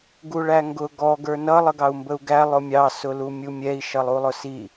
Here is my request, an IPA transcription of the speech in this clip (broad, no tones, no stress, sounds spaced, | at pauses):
ɡ u ɭ æ ŋ ɡ ʊ ɡ ɔ ɡ ə˞ n ʌ lˠ ə ɡ ɑ u̯ m b ə u̯ ɡ æ lˠ ʊ mʲ ɑ s ʊ l u mʲ u mʲ ɛ i̯ ʃ ʌ lˠ u lˠ ʊ s i